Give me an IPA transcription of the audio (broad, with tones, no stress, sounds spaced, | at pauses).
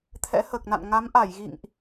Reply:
t̪ʰ ɛ̰˧˥ h əː˨˩ k̚ n a̰˧˨ n ŋ a˨˦ m ʔ a˧˩ j ɣ ḭ˧˨ ŋ ʔ